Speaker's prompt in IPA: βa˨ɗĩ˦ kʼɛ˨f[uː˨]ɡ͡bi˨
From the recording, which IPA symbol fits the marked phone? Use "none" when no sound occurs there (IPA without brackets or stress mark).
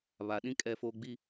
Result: oː˨